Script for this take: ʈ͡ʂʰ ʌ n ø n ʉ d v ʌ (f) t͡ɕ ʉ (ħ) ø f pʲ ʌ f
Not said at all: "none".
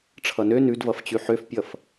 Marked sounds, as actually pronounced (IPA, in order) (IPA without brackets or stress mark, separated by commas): f, ħ